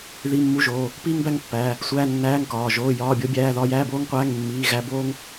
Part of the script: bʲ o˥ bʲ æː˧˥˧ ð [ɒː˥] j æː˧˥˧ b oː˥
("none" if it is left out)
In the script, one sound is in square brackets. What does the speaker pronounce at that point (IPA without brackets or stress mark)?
ɒː˥